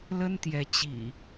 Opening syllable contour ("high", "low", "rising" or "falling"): high